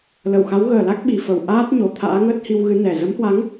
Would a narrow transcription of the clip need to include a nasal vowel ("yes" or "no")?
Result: no